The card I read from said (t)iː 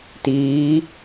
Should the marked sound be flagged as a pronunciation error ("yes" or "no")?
no